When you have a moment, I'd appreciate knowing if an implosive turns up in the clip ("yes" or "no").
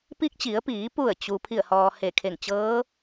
no